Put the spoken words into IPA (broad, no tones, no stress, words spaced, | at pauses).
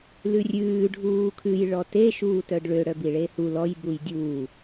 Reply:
lʉrʲʉː ɖʱuːkʰʉj ɭɔte ʃuːtœɖɭø ɽœbiɭehu lɔj bujdʲuː